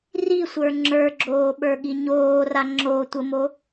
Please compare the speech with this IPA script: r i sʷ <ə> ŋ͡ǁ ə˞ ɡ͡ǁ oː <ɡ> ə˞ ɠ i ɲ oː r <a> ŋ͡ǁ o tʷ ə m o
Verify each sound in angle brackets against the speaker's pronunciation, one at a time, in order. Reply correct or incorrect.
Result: incorrect, incorrect, correct

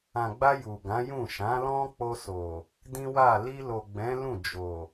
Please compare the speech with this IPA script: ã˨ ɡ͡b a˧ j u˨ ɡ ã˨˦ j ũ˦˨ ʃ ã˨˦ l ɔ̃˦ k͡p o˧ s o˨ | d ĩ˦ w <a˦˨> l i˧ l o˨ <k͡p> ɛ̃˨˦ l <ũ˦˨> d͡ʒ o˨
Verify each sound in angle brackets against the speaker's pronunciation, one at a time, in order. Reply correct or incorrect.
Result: correct, incorrect, correct

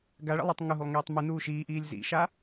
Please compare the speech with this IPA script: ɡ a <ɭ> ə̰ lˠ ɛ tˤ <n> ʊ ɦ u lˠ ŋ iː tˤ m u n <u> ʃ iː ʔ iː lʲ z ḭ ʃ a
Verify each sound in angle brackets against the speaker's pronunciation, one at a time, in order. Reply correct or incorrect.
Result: correct, incorrect, incorrect

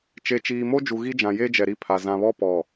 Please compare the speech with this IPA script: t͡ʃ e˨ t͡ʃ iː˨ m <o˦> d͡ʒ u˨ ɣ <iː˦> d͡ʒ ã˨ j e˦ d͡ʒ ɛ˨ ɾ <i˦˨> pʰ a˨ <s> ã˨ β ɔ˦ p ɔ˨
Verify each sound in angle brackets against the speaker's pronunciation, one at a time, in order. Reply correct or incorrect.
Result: correct, incorrect, correct, incorrect

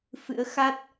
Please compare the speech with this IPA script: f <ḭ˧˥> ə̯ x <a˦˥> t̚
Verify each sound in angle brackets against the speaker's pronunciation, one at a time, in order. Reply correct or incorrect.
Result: incorrect, correct

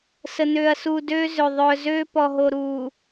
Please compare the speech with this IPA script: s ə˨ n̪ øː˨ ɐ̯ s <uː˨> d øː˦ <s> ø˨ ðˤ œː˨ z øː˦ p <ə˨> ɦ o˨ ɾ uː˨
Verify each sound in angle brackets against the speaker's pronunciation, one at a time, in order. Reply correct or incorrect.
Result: correct, incorrect, incorrect

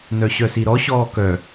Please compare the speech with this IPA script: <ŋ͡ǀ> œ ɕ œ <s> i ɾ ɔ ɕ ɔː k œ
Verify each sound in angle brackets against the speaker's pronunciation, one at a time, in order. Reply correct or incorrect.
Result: incorrect, correct

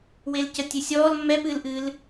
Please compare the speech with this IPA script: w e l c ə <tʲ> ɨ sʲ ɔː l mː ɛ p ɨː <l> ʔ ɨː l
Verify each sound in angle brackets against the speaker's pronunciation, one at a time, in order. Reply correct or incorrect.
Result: correct, correct

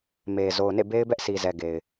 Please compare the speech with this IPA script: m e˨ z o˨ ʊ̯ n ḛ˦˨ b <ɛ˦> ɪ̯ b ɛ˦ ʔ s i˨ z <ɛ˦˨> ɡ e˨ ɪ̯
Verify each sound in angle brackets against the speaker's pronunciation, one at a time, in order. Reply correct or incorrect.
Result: incorrect, incorrect

